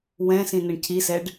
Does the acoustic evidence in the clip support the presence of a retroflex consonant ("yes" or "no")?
yes